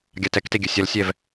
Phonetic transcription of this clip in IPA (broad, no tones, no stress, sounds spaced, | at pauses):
ɡʲ a t ɛ k t e ɡʲ ɘ sʲ ɐ l sʲ ɛ v